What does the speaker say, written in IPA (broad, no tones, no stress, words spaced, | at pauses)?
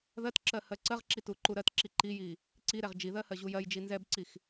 ðɜtǁɜ hɜǀɜʁǁi tuǃuɾɜtǁi ǃiji | ǀiɾɛʁ d͡ʒiðɜ hɜʑujɜjd͡ʒi nzɛbǀix